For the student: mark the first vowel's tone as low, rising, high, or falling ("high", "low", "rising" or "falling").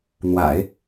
low